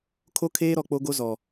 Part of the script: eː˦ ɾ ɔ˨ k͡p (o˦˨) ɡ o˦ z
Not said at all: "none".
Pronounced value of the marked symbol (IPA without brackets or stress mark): o˦